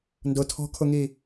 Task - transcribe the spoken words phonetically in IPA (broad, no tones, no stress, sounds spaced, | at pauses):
n d ʊ tʰ ɔ̤ kʰ ʊ ŋ i